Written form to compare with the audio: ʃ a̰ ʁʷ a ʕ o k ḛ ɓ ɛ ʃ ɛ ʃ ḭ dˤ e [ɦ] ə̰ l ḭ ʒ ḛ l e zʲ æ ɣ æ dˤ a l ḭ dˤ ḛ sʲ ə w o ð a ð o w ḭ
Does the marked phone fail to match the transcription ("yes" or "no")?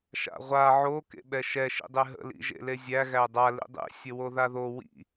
no